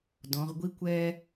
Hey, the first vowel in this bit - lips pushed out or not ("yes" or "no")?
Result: yes